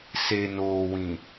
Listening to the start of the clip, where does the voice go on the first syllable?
low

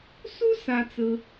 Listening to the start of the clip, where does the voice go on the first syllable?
high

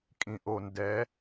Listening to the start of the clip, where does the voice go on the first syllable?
low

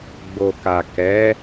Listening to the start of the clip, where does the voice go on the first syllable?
low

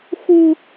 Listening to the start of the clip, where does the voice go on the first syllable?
high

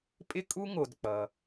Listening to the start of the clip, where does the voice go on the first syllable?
high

